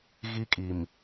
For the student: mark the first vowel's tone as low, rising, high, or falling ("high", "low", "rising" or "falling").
high